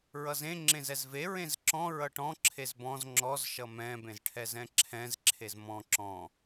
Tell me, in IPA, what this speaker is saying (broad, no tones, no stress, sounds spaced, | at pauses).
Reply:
ɹ ʌ z ẽ ŋ͡ǁ ẽ z ɛ z v e ɹ ẽ z ǁ ɔ̃ ɹ ʌ ʈ ɔ̃ ǁʰ e z b ɔ̃ z ŋ͡ǁ ɔ z ʃ ʌ m ɛ̃ b ẽ z ʈʰ ɛ z ɛ̃ ǁʰ ɛ̃ z ǁʰ e z m ɔ̃ ǁ ɔ̃